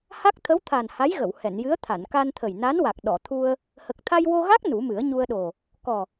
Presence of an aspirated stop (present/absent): present